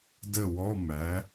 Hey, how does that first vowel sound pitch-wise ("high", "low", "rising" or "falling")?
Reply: falling